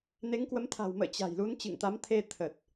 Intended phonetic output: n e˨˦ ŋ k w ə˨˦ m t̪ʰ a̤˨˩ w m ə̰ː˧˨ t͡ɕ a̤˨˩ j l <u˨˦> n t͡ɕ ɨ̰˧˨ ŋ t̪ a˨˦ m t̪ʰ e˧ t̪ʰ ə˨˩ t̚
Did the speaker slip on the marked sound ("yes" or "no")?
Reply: no